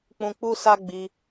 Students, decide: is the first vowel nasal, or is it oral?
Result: nasal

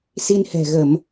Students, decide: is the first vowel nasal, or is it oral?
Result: oral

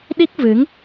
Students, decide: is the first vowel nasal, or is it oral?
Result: oral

